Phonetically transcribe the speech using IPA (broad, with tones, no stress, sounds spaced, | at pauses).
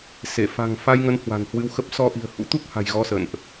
s e˧˩ f a̤˨˩ ŋ f a˧ j ŋ ə˨˦ n h w a̤˨˩ n h w ɨ˧ w x ə˦˥ p̚ s ɔ˧ ʔ i̤˨˩ ə̯ h ṵ˧˥ t̪ u˦˥ k̚ h a̤˨˩ j ɣ ɔ˧ s ə̰˧˨ n ʔ